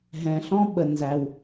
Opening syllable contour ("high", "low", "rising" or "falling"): low